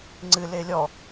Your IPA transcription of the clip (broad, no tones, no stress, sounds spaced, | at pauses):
ŋ͡ǀ ɨ l e lʲ ɔ